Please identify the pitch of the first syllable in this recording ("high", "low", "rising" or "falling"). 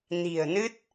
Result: low